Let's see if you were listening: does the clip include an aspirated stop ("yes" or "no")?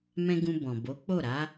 no